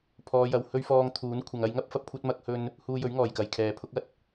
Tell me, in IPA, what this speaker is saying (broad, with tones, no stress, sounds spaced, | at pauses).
pʰ ɔː˨˧ j ɐ˨ w h ɵ˥ ɥ f ɔː˧ ŋ t̪ʰ uː˨˥ n kʷʰ ɐ˨ ŋ ɐ˧ j ŋ ɐ˥ p̚ f ɐ˧ p̚ kʷʰ ɐ˥ t̚ m ɐ˧ k̚ h ɵ˧ n | h uː˧ j ɵ˨˥ ɥ ŋ ɔː˨˩ j k ɐ˨ j kʰ ɛː˨ pʰ ʊ˥ k̚ ɐ˥ t̚